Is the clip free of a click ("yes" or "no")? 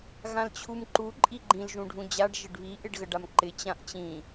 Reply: no